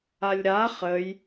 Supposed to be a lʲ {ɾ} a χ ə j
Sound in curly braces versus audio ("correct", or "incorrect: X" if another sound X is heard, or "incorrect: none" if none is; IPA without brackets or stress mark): correct